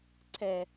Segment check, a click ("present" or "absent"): present